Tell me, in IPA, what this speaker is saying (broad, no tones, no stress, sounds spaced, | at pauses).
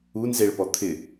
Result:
u n z e ɭ p ɔ t̪ʰ ɪ